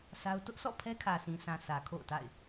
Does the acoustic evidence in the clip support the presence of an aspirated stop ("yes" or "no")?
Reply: yes